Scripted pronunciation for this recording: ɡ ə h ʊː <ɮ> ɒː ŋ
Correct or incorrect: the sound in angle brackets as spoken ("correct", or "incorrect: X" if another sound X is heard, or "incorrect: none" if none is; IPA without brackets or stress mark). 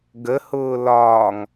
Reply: incorrect: l